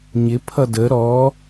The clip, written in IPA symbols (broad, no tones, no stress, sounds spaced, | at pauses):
ɲ ɪ pʰ ʌ d ə ɾ ɔ